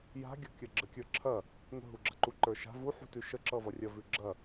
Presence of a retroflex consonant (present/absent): absent